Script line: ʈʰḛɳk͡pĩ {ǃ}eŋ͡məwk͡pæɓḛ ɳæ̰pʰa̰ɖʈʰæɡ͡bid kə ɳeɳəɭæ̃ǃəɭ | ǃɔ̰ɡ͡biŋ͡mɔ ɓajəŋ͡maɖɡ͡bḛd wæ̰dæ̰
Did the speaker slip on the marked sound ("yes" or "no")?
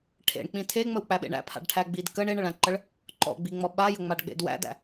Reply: yes